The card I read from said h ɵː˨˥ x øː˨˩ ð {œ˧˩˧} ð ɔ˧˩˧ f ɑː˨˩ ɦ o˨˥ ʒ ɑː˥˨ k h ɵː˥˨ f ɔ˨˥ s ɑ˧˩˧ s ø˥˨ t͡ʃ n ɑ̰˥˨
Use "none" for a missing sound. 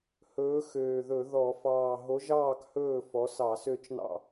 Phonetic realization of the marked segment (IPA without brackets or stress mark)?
ɵ˧˩˧